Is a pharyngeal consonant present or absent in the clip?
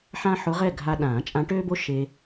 present